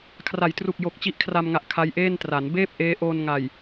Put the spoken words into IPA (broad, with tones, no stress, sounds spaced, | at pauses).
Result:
kʰ r a˩˦ j t r u˨˩ k̚ j o˨˩ k̚ t͡ɕ i˦˥ ʔ kʰ r a˧ m ŋ a˨˩ ʔ kʰ a˦˥ j ʔ eː˥˩ n t r a˩˦ n b eː˥˩ p̚ ʔ eː˦˥ ʔ oː˧ n ŋ a˨˩ j